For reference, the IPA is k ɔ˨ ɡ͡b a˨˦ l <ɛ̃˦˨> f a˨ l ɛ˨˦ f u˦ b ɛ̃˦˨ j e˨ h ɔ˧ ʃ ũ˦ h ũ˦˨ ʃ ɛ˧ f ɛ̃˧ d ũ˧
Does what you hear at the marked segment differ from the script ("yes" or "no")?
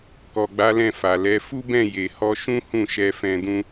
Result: no